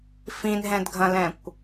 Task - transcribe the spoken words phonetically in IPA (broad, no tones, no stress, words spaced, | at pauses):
fĩnɦɛ̃dɡʱɐ̃lɛ̃kʷ